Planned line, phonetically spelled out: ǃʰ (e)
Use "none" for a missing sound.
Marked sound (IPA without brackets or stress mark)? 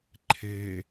e